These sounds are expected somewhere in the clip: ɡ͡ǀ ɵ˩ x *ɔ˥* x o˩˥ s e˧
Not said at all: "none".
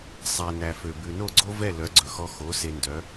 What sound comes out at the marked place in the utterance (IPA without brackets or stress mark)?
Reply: ɔ˧